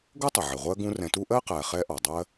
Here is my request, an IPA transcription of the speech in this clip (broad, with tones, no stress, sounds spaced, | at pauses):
ɡ ʊ˥ tˤ ɪ˩ ʕ ɪ˩ ʁʷ ɜ˦ ɡ ũ˦ r ɛ̃˨ t u˥ ʔ ɜ˥ q æ˨ χ ɛ˦ ʔ ɒ˩ dˤ ɜ˥